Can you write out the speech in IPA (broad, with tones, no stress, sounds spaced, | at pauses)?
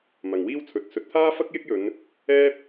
m ɐ˨ ŋ w iː˥ w t͡sʰ ɵ˨ t̚ s ɵ˧ t̚ t̪ʰ aː˥ f ɐ˥ k̚ j ɪ˥ k̚ j ɵ˨˧ n | ɛː˥ p̚